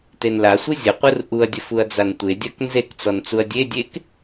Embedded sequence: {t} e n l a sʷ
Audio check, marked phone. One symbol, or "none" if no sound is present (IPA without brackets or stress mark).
t